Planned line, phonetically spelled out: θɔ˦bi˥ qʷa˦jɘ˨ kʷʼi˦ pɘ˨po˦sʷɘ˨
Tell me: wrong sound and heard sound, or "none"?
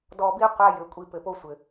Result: θ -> d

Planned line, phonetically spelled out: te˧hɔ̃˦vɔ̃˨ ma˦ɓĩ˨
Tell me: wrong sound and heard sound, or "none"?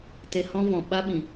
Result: m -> ɓ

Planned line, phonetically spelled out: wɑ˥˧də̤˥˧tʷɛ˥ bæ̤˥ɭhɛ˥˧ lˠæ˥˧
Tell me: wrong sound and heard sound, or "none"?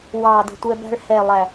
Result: none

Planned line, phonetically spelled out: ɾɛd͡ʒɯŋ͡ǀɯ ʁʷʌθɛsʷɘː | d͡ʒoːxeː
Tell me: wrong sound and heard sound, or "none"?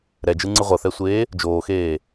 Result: ɘː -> eː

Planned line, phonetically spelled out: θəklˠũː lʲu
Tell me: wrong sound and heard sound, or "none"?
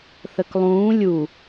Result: none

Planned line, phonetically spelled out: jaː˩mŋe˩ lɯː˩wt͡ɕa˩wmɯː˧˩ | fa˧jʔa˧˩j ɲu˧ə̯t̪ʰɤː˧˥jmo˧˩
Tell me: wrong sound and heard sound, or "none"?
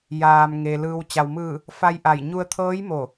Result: none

